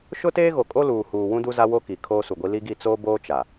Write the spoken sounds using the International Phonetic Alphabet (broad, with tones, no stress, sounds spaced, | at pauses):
ʃ ʊ˦ t eː˦ ɣ o˨ kʼ o˦ l uː˨ h uː˨ w ũ˦ d u˦ z a˦ w o˦ k i˨ kʰ oː˦ s u˨ ɡʷ i˦ l i˦ ɡ i˦˨ t͡s oː˦ b oː˦ t͡ʃ a˨